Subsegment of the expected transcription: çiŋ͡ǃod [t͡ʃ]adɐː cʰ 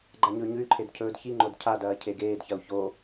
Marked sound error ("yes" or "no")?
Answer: yes